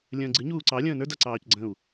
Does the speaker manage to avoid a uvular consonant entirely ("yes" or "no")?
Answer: yes